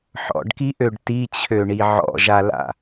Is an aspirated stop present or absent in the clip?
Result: present